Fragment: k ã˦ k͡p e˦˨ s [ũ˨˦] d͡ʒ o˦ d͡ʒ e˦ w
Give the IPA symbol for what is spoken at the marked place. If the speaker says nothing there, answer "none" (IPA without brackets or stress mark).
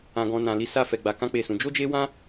ũ˧